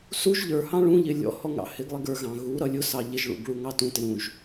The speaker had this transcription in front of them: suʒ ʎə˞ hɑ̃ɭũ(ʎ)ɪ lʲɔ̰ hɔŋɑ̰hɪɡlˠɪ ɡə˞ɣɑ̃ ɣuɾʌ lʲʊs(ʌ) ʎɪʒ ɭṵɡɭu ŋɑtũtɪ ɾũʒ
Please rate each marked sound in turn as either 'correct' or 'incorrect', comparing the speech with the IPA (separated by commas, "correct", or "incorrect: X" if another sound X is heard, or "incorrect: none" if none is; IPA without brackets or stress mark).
correct, incorrect: ɑ